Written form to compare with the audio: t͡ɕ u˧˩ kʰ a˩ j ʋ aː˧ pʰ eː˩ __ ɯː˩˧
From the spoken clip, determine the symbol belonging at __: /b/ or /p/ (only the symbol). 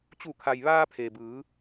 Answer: b